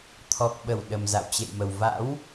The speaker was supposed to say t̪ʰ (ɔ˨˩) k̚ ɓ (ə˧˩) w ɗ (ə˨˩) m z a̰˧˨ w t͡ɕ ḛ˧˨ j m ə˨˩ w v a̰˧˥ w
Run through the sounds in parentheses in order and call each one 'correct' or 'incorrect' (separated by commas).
correct, correct, correct